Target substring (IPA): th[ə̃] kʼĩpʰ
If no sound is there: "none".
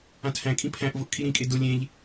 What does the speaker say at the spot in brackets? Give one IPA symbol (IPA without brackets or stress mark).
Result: æ̃